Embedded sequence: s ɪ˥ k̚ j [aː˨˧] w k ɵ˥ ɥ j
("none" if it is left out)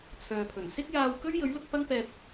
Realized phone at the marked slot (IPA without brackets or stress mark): aː˧